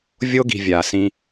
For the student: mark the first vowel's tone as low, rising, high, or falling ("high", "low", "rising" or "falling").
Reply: high